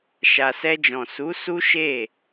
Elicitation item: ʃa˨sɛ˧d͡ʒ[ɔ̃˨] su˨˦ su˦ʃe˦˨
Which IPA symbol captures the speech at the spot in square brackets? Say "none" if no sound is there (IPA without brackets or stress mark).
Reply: ɔ̃˨